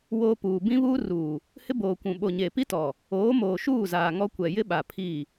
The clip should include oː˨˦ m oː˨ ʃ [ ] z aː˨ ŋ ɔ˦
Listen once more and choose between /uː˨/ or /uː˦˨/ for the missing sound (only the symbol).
uː˦˨